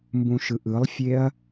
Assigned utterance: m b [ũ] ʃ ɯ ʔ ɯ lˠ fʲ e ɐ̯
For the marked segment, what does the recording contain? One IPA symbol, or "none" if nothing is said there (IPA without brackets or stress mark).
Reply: ũ